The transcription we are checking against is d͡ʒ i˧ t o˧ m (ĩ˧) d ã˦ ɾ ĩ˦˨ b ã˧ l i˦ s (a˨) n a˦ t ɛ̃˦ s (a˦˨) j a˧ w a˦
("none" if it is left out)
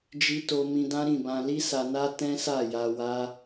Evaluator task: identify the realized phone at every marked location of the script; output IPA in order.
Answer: ĩ˧, a˧, a˦˨

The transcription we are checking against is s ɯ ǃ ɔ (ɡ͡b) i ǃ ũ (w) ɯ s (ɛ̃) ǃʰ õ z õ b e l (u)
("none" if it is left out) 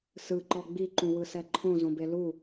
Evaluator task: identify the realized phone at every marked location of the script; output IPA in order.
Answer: ɡ͡b, w, ɛ, u

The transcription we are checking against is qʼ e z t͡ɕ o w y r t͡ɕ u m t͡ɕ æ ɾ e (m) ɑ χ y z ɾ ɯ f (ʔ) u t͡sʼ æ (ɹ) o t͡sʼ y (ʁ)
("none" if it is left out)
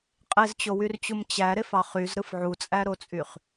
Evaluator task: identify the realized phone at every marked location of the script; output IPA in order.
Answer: f, ʕ, ɾ, χ

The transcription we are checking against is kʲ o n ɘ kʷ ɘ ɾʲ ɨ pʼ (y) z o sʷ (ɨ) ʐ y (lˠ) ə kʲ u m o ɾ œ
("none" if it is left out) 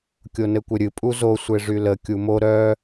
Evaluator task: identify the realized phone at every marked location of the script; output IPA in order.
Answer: u, e, l

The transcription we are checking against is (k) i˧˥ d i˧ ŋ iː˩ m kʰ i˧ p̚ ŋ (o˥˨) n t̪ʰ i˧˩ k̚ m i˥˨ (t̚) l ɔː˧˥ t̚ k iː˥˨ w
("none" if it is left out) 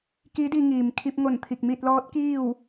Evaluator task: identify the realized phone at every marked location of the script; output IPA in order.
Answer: k, o˧˩, t̚

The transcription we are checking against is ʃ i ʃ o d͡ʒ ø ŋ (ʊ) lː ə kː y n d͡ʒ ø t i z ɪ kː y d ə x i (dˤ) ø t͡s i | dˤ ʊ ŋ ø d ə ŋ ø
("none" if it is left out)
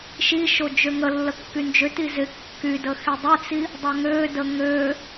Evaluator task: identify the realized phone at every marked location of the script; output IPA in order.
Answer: ə, dˤ

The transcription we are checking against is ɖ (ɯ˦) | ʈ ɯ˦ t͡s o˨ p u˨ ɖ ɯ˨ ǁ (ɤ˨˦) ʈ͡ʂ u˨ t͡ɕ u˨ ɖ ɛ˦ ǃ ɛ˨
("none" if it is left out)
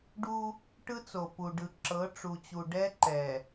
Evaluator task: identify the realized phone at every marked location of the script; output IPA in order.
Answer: u˦, ɤ˨˦

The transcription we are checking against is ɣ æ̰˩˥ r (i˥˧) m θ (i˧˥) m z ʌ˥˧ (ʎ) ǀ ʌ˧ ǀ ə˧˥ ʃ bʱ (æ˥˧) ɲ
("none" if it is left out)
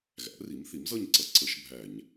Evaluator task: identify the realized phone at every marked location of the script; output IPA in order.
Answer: i˩˥, i˩˥, ɲ, æ˧˩˧

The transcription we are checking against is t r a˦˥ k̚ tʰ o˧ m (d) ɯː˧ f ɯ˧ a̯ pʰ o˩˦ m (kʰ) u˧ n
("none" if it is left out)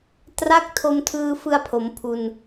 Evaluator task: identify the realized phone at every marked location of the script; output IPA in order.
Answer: tʰ, pʰ

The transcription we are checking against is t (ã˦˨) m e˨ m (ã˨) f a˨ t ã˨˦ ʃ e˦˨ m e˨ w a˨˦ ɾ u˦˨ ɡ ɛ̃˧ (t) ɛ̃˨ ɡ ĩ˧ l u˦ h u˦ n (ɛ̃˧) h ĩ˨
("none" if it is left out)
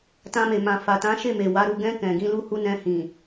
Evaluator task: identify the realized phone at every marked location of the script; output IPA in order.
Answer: ã˧, ã˨, k, ɛ̃˧

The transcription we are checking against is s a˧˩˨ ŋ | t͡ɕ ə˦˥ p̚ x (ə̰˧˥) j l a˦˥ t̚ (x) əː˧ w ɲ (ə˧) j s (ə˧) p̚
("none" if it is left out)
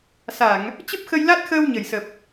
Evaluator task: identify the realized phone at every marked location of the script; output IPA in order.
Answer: ə˧, x, ə˧˩, ə˨˩

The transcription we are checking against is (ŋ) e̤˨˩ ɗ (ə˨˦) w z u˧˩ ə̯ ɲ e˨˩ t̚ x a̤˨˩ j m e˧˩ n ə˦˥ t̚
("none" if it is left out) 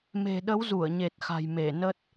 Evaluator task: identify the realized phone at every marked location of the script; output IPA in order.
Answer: m, ə˨˦

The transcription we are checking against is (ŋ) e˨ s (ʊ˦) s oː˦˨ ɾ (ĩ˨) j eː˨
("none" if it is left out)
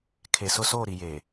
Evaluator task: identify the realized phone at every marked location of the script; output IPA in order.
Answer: kʰ, ʊ˦, i˨

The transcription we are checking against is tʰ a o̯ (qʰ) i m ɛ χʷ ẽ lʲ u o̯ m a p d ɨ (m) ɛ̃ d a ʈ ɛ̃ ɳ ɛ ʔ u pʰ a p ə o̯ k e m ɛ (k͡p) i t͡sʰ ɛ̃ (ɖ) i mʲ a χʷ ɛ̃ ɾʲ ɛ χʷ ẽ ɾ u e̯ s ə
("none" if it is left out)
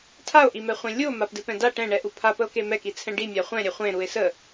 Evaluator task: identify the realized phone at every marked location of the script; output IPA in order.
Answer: ʔ, p, k, ɖ

